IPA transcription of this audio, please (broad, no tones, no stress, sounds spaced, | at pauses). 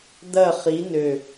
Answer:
d̪ ɐ χ i n ø